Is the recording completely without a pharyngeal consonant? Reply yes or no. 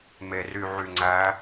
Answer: no